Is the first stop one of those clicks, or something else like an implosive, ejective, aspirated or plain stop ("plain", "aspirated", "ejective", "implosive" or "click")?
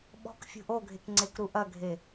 implosive